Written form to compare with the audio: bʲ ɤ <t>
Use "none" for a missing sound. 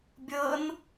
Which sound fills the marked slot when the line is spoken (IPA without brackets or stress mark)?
n